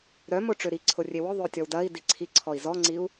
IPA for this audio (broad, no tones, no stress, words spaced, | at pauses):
ɾœmʊʈ͡ʂø ɾiǀʰʊrʲe wʊðˤøtʲɔw dɐi̯di ǀʰiǀʰɔi̯ zɔŋ͡ǀiu̯